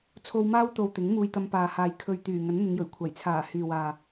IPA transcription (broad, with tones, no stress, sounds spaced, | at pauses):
t͡sʰ o˧ w m aː˥ w t̪ o˨ w t̪ ɪ˨˥ ŋ m uː˧ j t̪ ɐ˧ m p aː˨ h aː˨ j kʰ ɵ˨ ɥ t̪ yː˨˩ ŋ ɐ˨˥ n n̪ ɪ˨˧ ŋ j ɵ˨˩ ɥ kʷʰ ɐ˨˩ j t͡sʰ aː˨˩ h yː˨ w aː˨